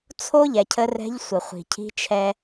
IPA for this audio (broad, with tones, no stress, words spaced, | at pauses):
t͡sʰo˥ʎɛ˩cʰə˧ rɛ̤˧˥ʎsʷə˩ χʷi̤˩cʰi̤˧˥t͡ʃʰɛ˧